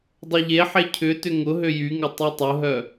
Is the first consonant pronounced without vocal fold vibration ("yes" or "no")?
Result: no